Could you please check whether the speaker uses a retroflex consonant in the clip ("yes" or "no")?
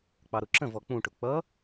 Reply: yes